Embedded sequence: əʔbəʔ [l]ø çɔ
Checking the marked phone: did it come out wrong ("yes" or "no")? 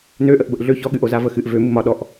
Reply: yes